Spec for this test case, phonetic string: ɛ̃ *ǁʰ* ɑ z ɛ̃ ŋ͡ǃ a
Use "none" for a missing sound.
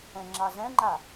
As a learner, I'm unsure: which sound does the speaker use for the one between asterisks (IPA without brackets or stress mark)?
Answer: ŋ͡ǁ